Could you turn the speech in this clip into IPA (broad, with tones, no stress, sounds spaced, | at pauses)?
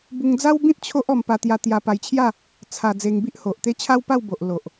b u˧ ŋ d͡z a˦ w b ĩ˦ t̚ t͡ɕʰ o˦ ʔ ɔ˧ m p a˧ t̪ j a˧ t̪ j a˧ p a˧ j t͡ɕʰ j a˥˧ | t͡sʰ a˨˩ d͡z e˧ ŋ b i˦ ʔ h o˨ ʔ t̪ e˦ t͡ɕʰ a˦ w p a˥˧ w b o˨ ʔ l o˨ ʔ